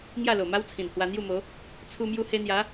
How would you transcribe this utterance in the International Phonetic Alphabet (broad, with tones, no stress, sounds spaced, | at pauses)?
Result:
ŋ j a˥˧ l o˨˩ m a˦ w t͡sʰ ĩ˨˩ n h w a˧ n̪ j u˥˧ m o˨˦ | t͡sʰ u˧ m j u˧ h e˧ n̪ j a˨˦